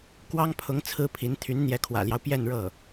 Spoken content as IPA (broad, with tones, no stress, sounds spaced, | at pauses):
k w ɑ˥ ŋ pʰ ʊ˧˥ ŋ t͡sʰ ɹ̩˥ pʰ i˧˥ n t̪ʰ y˧˥ n n̪ j ɛ˧˥ kʰ w ä̰˨˩ l j ɑ˦ ʊ̯ p j ɛ˥˧ n ɻ ɤ˥˩